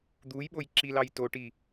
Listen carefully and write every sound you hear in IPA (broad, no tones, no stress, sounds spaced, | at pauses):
d̪ u j ɓ o j ǁ i l ɑ j t o ʈ i